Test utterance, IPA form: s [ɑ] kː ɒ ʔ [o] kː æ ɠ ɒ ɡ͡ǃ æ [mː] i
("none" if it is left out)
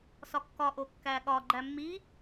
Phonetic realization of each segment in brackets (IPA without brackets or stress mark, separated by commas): ɒ, o, mː